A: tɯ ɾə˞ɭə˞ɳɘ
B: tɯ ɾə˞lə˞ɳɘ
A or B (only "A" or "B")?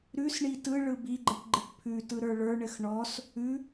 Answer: A